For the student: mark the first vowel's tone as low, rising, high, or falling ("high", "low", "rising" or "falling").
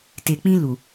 low